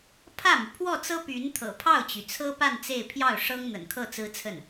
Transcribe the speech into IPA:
pʰ ä˥˩ m y˩ pʰ w ɔ˥˩ t͡s ɤ˥ p y˧˥ n t̪ʰ ɤ̰˨˩ pʰ ɑ˥˩ ʊ̯ t͡ɕ y˩ t͡sʰ ɤ˥ p a˥˧ n t͡s e˥˧ ɪ̯ pʰ j ɑ˥˩ ʊ̯ ʂ ɤ˥ ŋ n̪ ə̰˨˩ n kʰ ɤ˥˩ t͡s ɹ̩˥ t͡sʰ ə˥˩ n

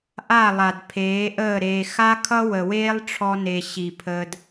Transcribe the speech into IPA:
ʔ a˦˨ lˠ a˨ d pʰ eː˨˦ ʔ əː˦˨ ɾ eː˨ x a˦ kʰ ʌ˦ w ə˨ w eː˦ lˠ ʈ͡ʂʰ ɔ˧ n e˨ ɕ i˨ pʰ əː˧ d

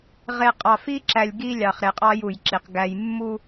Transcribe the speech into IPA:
ʁ e˨ qʼ ɑ˨ f i˦ ǁ æ˨ lʲ ɡ i˦ lʲ ɑ˨ χ ɾ e˨ qʼ ɑ˦ j u˨ j ǁ i˨ q ɡ æ˦ j mː u˦

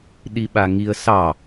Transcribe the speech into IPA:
ɗ i ɓ a ŋ i ə̯ s ɑ

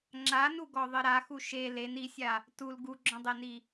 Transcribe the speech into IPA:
ŋ͡ǁ a n u ɡ ɔ ðˤ ɘ ɾ a x u ʃ e l e n i sʲ a | t u l ɡ u ɡ͡ǁ ɔ̃ dˤ e n i

